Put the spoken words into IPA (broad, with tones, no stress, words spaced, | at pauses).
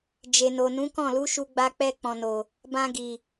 d͡ʒe˨no˨nũ˨˦kɔ̃˦˨ lu˨˦ʃu˧ ɡ͡ba˧ k͡pɛ˧ k͡pɔ̃˨no˨ | bã˧ɡi˨